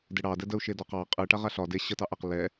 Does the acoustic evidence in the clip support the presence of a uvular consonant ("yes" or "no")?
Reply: yes